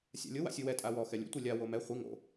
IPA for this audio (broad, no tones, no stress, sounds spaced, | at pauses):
sʲ a̰ lʲ ʊ w a̰ sʲ u w ɛ tʼ a w ɔ x ɛ lʲ ṵ tʷ i lʲ a w o m ɛ χʷ i ŋ o̰